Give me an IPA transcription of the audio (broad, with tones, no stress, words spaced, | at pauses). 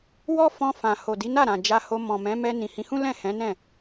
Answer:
wɔ˦fɔ̃˧fã˨ ho˨di˨˦na˦˨ ɾã˨d͡ʒa˧ho˧ mɔ̃˨mɛ̃˨˦ mɛ˧ nĩ˨hĩ˨˦hũ˦ lɛ̃˦˨hɛ̃˨˦ nɛ̃˦˨